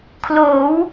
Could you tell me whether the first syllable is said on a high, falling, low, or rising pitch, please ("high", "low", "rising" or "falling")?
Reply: rising